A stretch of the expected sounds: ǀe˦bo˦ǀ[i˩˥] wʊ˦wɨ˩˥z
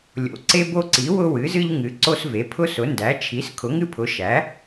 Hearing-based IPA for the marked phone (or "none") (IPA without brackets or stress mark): i˩˥